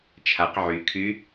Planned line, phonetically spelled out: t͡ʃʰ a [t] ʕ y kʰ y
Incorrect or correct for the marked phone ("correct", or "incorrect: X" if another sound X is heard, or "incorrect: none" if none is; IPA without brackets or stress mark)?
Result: incorrect: q